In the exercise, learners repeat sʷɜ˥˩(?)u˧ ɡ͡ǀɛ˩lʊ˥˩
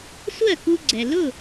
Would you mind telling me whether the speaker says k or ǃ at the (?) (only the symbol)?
k